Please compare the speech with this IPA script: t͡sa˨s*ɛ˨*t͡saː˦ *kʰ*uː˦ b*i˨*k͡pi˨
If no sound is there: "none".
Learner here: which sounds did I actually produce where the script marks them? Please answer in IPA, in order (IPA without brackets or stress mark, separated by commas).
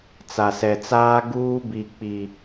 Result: ɛ˨, ɡ, i˨